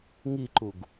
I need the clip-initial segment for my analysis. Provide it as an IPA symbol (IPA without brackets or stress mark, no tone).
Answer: ŋ